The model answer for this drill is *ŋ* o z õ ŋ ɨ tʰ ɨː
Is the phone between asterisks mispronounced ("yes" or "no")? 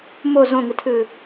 yes